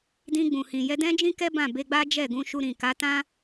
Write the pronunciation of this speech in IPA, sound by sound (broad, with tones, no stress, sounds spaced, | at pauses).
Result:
d ĩ˧ ɡ͡b ũ˨ h ĩ˨ j ɛ˧ d ɛ̃˦ d͡ʒ ĩ˦ k ɛ˦ b ã˦˨ b e˧ ɡ͡b a˦ d͡ʒ ɛ˦˨ ɡ ũ˧ ʃ u˧ ɾ ĩ˨ k a˨˦ t ã˦